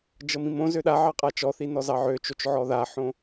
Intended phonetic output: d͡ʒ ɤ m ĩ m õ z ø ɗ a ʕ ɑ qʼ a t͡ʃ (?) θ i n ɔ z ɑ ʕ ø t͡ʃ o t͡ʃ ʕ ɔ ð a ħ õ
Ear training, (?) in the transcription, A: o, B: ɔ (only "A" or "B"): B